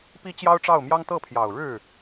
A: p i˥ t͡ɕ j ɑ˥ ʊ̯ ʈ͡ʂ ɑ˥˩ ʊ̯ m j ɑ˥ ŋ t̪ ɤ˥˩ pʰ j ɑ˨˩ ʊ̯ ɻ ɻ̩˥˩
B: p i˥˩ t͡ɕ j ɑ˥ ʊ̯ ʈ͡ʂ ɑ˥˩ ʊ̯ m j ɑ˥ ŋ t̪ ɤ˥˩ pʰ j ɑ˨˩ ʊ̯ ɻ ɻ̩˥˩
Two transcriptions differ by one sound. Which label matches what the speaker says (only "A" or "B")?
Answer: A